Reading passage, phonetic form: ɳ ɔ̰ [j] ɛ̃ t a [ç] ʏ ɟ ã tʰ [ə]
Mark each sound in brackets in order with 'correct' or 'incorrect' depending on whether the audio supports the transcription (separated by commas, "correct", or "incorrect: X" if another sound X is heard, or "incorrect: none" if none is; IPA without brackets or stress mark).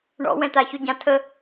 incorrect: w, correct, correct